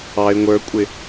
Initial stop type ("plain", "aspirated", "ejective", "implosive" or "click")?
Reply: ejective